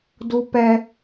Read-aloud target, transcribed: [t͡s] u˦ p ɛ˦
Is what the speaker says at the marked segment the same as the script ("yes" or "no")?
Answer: no